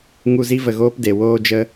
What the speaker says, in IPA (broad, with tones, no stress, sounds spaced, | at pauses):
ŋ u˧ z i˦ v ə˨ ɣ oː˦ p d e˨ w oː˦ d͡ʒ ə˦